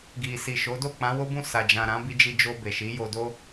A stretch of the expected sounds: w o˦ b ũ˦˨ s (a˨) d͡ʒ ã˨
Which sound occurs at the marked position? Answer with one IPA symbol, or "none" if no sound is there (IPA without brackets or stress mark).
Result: a˨